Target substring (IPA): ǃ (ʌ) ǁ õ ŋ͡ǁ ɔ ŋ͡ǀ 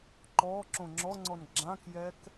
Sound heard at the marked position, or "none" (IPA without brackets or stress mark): ɔ